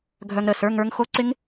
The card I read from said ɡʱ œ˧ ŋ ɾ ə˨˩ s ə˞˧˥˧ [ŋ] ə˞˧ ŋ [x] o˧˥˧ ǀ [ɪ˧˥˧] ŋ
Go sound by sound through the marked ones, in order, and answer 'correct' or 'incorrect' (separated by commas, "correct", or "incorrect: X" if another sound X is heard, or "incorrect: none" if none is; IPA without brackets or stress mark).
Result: correct, correct, incorrect: ɪ˦˥